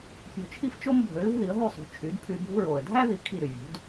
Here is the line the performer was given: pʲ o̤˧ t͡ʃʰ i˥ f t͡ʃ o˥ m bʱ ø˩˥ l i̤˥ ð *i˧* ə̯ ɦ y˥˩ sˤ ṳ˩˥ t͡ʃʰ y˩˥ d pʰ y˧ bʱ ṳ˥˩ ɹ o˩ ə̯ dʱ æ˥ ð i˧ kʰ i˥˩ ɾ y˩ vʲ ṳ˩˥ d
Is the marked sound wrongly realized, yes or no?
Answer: yes